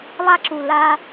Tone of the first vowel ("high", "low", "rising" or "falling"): high